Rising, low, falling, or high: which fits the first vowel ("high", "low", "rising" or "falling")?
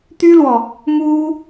high